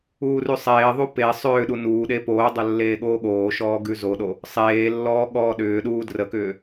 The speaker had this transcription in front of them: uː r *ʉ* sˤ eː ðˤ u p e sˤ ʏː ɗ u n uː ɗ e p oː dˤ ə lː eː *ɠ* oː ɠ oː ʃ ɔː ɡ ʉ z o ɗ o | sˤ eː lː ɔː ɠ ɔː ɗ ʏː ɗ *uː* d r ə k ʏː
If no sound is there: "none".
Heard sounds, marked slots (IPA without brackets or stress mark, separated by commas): ʉ, ɠ, uː